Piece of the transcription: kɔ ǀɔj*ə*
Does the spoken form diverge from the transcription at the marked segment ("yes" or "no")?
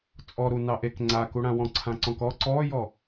yes